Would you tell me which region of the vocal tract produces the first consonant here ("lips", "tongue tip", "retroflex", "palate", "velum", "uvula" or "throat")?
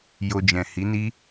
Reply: palate